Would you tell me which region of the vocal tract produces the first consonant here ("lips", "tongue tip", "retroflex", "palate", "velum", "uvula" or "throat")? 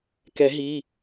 velum